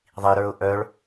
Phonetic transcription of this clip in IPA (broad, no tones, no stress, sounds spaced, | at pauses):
ðˤ i ɾ ə˞ ʊ̯ ʔ œ ɭ